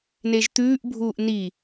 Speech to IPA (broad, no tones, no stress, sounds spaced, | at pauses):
n e ʒ t̪ ʉː ʔ bʱ uː ʔ n i